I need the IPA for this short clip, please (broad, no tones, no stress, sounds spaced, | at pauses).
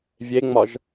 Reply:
vʲ e ŋ͡m ɒ ʒ